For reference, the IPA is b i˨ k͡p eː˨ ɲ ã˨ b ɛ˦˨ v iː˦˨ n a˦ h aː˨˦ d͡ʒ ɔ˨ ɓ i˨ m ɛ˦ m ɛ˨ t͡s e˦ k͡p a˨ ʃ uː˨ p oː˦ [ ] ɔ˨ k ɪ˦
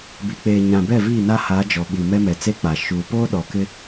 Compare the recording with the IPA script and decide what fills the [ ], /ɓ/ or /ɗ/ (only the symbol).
ɗ